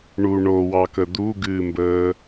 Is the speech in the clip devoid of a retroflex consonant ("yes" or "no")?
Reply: no